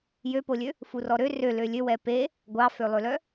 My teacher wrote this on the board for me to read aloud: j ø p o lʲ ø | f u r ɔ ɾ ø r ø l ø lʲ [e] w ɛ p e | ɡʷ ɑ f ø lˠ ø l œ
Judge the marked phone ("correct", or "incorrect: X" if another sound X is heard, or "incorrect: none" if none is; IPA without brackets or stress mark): incorrect: ø